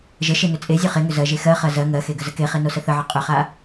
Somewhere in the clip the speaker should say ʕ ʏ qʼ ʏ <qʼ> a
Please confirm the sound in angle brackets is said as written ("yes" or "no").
no